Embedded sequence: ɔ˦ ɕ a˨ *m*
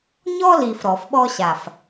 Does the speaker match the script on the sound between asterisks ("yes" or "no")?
no